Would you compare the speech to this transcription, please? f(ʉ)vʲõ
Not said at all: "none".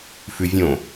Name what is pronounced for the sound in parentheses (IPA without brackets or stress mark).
ʉ